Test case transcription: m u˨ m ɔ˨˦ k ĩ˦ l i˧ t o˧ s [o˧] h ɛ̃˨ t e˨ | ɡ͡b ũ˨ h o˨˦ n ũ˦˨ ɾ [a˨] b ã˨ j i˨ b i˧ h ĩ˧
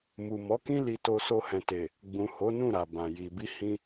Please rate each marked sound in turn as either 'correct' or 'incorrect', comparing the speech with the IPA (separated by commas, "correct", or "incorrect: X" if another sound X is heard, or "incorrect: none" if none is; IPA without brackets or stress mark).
correct, correct